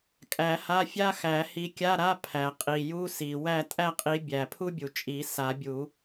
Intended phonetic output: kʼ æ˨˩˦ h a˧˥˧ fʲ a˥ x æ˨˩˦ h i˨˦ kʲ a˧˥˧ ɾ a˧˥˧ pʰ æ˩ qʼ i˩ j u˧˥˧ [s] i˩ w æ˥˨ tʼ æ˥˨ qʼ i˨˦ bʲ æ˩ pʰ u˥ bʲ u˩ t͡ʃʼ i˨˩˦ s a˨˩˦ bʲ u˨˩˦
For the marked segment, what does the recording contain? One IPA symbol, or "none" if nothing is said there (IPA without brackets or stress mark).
s